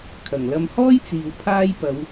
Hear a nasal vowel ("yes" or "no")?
no